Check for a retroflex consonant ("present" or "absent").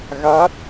absent